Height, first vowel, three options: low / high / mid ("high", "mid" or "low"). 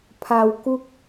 low